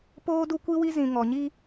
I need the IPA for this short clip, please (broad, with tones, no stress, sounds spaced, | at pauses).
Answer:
p oː˦ d u˦ kʷ i˦ w i˦ z ĩ˨ ŋ ɔ˨ ɲ i˦